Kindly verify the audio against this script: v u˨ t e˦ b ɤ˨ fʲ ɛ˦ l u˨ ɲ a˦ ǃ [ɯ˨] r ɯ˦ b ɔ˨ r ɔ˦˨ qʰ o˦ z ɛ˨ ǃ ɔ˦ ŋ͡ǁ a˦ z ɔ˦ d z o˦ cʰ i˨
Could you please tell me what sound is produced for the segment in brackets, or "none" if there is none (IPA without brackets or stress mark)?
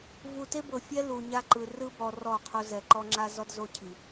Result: ɯ˨